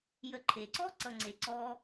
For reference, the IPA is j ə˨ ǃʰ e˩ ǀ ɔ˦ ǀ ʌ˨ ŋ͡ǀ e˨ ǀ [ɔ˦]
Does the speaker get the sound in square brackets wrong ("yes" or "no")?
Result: no